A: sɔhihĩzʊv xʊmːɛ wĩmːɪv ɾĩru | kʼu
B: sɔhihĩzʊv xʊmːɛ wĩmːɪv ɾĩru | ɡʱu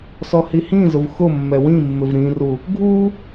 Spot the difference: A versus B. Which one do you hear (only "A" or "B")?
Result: B